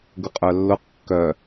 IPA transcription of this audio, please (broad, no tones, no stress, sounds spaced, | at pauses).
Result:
ɡ ʊ qʼ œ lː ʊ q kː œ